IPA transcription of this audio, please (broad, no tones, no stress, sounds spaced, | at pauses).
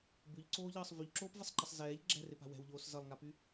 b ʉ ʎ ǀ oː ʎ ʌː sˤ v y ʎ ǁ oː p v ɪ sˤ ǃ ʌ sˤ z ɛː ʎ ɡ͡ǁ ɛ̤ r ɪ p a̤ w ɛ̤ w ʎ oː s z ʌ lˠ ŋ a p y